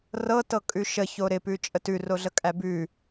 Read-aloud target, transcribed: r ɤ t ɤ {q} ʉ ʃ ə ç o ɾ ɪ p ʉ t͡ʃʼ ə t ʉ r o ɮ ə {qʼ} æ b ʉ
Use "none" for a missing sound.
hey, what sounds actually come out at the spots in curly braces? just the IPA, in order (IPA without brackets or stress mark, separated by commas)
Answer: kʼ, kʼ